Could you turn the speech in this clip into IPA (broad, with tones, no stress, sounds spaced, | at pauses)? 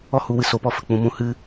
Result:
ɔ˦ h u˨˦ w ɨ˨ s o˧ p ɔ˦ f ə˨ k͡p ũ˧ m ũ˧ h ɨ˦